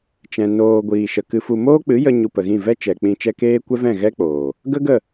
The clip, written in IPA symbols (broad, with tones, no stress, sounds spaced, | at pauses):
t͡ʃ ɛ̃˨ n oː˨ ɡʷ iː˨ ʃ ə˨ k ɨ˧ f u˧ m oː˦ k͡p ɨ˨˦ j ə˧ ɲ u˧ p ə˨ ɣ ĩ˦˨ v ɛ˦ t͡ʃ ɛ˨ k͡p ĩ˧ t͡ʃ ɛ˧ k eː˦ kʷ ɛ˦ v ɛ̃˦˨ ɣ ɛ˦ k͡p oː˨ | ɡ ə˦ ɡ ə˦˨